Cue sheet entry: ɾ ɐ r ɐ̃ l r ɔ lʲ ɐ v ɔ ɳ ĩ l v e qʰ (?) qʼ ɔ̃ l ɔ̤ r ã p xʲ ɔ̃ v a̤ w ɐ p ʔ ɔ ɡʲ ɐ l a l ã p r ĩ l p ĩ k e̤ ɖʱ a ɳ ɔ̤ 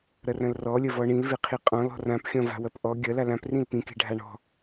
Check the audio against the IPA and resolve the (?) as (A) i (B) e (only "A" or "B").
A